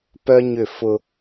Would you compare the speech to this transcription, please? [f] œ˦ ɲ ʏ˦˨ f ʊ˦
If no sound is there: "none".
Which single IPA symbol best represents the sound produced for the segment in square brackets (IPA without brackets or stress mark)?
p